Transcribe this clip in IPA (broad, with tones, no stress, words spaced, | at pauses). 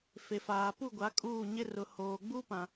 fe˨faː˨ pu˦˨ɡʷa˨˦ kʼuː˦˨ɲɪ˦ rʊ˨hoː˨ɡ͡bu˦ pã˦